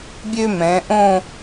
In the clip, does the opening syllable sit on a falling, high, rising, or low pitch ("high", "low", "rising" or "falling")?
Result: high